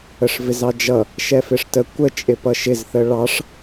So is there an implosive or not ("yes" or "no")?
no